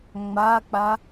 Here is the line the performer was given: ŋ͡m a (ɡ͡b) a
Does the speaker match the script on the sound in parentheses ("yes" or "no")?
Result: no